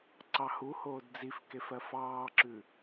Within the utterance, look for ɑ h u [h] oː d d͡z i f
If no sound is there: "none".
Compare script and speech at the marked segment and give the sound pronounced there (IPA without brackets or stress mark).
h